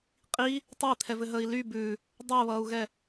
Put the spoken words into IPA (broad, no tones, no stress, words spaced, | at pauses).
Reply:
qʼi | tˤai̯t̪ʰɛvɘɦəːi̯ ly bʉ | dˤəːβʌːu̯ɣɛ